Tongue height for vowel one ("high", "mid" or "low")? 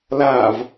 low